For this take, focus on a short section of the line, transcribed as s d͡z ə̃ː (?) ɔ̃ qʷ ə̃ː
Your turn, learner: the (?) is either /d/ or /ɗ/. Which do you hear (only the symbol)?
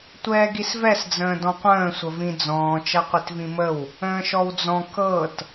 d